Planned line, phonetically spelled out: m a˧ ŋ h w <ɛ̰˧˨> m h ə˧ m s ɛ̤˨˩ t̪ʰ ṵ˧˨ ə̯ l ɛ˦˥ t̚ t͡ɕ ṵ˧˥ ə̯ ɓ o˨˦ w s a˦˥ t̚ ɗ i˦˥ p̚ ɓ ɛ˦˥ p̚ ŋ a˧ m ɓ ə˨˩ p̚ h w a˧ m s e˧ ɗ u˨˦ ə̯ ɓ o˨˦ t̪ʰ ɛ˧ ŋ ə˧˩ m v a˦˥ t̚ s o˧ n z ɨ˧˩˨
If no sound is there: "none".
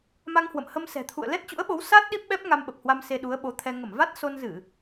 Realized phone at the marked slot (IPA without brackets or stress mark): ə̰˧˨